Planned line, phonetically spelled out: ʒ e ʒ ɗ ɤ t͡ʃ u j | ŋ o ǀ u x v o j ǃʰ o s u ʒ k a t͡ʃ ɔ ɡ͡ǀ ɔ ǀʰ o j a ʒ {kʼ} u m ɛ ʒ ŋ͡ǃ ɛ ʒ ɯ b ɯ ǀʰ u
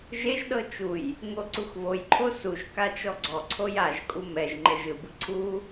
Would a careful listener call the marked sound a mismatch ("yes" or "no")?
no